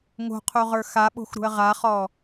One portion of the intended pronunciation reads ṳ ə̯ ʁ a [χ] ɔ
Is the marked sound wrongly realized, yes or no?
no